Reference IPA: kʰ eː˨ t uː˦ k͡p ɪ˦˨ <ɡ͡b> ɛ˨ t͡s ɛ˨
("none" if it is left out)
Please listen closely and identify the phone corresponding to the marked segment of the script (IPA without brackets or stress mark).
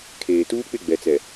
ɡ͡b